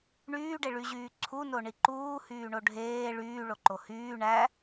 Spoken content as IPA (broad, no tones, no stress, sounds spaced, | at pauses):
ɳ yː ɖ e ɭ y ʑ yː ǀʰ u n o ɳ i ǃ uː h yː ɳ o ɖʱ eː ɭ yː ɭ o ǃ o h yː ɳ æ